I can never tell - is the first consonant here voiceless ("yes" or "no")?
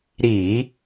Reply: no